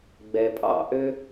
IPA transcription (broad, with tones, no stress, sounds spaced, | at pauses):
ɡ͡b ɛ˧ pʼ ɑ̰˥˧ ʔ ø˥